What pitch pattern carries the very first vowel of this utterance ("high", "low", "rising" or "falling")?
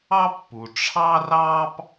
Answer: high